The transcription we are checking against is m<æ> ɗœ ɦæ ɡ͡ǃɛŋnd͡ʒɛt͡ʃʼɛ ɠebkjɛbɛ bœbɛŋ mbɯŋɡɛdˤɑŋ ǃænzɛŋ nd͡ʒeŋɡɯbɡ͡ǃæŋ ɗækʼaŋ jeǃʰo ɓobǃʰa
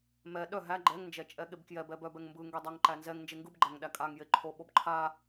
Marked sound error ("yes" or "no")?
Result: yes